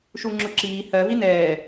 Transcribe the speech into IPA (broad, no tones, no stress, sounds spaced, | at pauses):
ʃ u ŋ͡ǁ ʊ ǁ iː h ɜ v i n ɛː